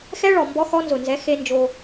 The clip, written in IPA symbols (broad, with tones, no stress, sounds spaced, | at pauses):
x ɛ˦ ɭ ɔ˨ m b ɔ˦ x ɔ˦ n z ʊ˨ n z ɛ˨˦ x e˦ n d͡ʒ o˦